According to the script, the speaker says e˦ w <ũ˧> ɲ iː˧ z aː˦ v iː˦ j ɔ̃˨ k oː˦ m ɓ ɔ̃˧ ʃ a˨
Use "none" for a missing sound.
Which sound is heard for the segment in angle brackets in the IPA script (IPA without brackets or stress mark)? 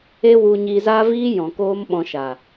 u˧